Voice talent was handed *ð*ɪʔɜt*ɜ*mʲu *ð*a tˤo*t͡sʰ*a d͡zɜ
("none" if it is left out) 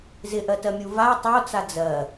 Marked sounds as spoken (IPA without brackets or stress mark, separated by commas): z, ɜ, v, t͡s